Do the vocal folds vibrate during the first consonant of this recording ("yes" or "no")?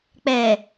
no